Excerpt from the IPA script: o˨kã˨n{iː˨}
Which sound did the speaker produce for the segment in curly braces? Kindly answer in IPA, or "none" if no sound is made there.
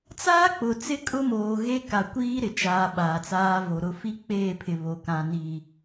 iː˨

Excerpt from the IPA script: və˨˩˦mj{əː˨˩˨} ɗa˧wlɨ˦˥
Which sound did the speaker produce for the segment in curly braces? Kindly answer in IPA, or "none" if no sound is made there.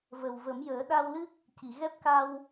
əː˨˩˦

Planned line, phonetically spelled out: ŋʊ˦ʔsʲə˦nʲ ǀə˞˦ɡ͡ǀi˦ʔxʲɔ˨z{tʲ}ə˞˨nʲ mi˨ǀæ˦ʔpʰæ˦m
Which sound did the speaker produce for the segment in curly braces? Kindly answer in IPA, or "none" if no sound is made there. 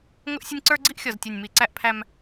tʲ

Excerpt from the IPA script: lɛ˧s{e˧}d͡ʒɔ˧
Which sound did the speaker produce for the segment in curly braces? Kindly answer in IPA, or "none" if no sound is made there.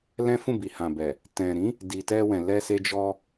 e˧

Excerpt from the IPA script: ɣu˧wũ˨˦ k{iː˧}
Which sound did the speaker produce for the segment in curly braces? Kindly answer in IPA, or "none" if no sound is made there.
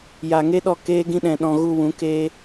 eː˧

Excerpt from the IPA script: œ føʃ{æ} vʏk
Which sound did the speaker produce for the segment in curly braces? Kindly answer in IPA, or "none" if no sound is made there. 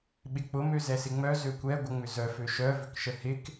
œ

